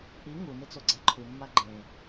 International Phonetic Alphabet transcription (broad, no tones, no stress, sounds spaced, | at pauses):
ʔ i ŋ u n ɪ t͡s o ɡ͡ǀ a ǃʰ u mː a ɡ͡ǃ ẽ